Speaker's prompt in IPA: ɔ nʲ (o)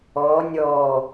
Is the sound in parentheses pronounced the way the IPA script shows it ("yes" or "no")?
no